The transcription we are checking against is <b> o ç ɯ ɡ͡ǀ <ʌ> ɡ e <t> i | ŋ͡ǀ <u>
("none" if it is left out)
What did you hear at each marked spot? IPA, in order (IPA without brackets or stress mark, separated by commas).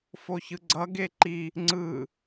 f, ʌ, ǃ, ɯ